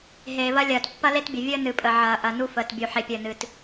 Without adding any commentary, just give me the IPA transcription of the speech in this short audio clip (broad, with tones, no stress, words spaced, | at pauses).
ɦeː˨βɐ˦lʲɐː˨t pːɐ˦le˦tbʲə˨ vʲəː˦nɨ˨pʼə˨ ʕɐː˨ʔɐ˨ nu˦fəː˨tbʲu˨ ħe˨pʲəː˨nɨ˨t